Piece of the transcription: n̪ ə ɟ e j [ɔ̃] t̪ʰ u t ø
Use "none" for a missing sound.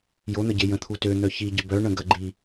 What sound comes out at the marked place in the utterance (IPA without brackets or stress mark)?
ə̃